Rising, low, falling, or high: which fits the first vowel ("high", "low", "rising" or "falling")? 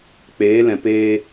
rising